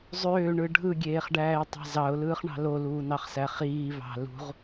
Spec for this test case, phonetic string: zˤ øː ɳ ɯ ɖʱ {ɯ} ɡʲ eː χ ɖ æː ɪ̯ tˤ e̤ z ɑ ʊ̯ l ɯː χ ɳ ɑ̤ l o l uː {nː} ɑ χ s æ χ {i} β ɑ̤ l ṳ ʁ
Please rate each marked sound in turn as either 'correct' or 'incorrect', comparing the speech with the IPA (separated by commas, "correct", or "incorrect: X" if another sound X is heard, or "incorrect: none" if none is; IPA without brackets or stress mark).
correct, incorrect: n, incorrect: iː